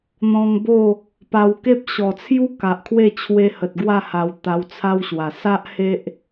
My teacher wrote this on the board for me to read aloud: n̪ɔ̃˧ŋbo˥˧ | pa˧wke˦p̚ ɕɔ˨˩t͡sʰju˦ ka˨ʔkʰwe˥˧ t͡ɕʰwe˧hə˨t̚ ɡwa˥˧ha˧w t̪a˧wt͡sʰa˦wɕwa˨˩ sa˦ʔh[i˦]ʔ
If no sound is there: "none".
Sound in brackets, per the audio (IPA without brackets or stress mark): e˦